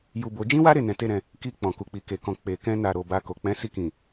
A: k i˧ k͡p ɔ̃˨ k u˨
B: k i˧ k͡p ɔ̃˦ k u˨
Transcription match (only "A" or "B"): A